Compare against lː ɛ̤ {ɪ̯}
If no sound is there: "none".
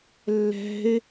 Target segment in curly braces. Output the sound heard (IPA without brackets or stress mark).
ɪ̯